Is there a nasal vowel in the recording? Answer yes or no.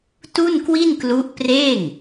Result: no